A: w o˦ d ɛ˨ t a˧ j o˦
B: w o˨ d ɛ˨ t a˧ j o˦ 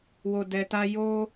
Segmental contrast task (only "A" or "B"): B